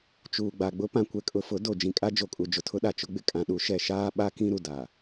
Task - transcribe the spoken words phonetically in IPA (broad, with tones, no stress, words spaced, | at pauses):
t͡ʃuː˨ɡ͡ba˨ɡ͡bʊ˦ pã˨kʷɛ˨ kʼʊ˨fʊ˨˦ do˨ d͡ʒĩ˨kʼa˦ d͡ʒo˨kʼu˨d͡ʒʊ˨tʰʊ˦ ɗa˨t͡ʃʊ˦ɡ͡bɪ˦ kʼã˨ɗu˨˦ ʃɛ˨ʃaː˦ ɓa˦kĩ˦ ɾu˨ da˨